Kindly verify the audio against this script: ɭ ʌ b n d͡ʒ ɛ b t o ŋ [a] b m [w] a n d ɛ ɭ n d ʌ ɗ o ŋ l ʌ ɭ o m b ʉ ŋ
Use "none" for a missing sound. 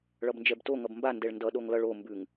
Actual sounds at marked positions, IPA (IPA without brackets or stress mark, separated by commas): ʌ, b